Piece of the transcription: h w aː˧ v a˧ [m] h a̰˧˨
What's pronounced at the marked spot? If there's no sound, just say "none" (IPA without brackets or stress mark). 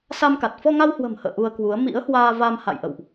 m